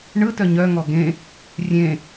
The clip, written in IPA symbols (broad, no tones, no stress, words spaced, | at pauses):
ɳɯtœ ɲœŋɔ ɡẽ | rʲẽ